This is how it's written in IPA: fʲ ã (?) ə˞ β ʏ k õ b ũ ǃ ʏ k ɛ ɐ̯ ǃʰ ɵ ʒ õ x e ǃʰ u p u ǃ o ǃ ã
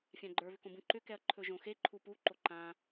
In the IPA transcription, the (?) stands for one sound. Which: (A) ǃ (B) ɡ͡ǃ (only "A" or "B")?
B